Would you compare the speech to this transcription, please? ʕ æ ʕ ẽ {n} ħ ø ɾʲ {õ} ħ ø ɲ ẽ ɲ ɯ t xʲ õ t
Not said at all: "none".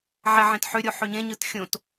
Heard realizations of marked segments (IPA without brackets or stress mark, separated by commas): t, o